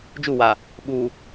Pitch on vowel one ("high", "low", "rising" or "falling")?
falling